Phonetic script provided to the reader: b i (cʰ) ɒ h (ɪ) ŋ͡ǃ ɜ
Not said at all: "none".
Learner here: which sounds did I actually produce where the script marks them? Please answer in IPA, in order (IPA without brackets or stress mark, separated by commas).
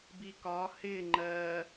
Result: k, ɪ